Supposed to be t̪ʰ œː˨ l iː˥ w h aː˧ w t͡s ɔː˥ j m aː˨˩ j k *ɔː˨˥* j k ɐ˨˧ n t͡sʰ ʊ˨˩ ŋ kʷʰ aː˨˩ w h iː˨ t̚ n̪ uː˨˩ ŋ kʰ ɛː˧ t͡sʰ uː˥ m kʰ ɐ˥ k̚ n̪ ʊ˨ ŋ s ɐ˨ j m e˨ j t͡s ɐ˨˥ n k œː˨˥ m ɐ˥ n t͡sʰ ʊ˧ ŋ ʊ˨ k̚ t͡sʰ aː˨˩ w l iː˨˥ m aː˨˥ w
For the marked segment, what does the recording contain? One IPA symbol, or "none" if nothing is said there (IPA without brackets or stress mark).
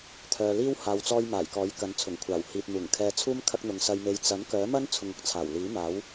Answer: ɔː˨˥